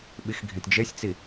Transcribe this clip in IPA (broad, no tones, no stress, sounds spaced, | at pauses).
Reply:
ɓ i x ɡʱ ĩ t d͡ʒ e sʲ t͡s i